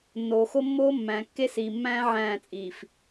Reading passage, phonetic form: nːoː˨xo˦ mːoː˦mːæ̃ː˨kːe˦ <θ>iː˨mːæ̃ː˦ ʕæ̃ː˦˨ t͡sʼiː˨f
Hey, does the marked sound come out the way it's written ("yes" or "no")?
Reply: no